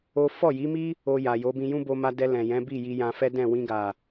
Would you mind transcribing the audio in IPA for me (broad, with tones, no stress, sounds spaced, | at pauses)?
o˦ f ɔ˦˨ j i˨˦ m i˦ | o˧ j a˨ j o˨˦ b ĩ˧ j ũ˦ b o˧ m a˧ d ɛ˧ l ɛ̃˨ j ɛ̃˨˦ b i˦˨ j i˧ j ã˧ f ɛ˦ d ɛ̃˦˨ w ĩ˧ ɡ a˨